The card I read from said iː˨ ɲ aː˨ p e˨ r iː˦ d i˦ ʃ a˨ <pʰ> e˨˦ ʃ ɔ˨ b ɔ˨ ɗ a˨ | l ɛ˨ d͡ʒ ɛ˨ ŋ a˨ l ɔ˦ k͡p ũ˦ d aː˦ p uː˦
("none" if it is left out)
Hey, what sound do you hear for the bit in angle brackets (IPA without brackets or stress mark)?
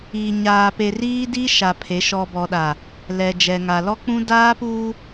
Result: pʰ